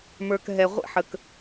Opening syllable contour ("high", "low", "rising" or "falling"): low